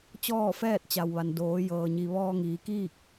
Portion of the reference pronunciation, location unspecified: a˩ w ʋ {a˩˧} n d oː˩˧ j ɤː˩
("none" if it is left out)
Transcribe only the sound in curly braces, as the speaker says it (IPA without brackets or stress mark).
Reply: a˩